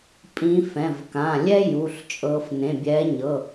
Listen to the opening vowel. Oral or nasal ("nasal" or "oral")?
nasal